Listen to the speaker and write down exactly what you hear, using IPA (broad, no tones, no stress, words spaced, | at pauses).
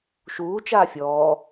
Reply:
ʃuːt͡ʃaː fʲɔː